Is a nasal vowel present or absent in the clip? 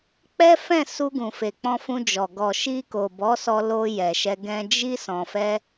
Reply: present